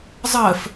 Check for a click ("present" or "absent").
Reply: absent